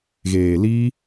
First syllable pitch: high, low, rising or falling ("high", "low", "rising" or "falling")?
low